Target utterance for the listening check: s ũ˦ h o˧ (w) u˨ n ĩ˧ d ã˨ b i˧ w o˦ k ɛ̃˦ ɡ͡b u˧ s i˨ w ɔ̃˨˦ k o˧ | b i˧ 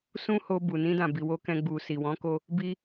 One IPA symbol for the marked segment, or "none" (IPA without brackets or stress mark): b